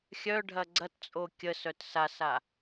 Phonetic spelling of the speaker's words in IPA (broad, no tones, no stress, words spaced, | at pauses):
xʲœɖʱɐ ɡ͡ǀɐtt͡sʼo kʲəsœt sasa